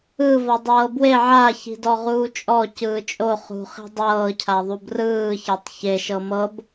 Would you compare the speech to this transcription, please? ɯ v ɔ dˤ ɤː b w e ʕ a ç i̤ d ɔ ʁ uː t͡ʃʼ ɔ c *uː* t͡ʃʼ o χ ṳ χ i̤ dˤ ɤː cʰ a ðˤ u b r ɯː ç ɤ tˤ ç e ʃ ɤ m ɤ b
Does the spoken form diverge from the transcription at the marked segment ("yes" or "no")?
yes